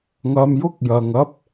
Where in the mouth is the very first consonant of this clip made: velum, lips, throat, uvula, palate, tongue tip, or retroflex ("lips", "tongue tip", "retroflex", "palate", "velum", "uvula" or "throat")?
velum